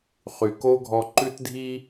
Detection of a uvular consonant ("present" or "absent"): present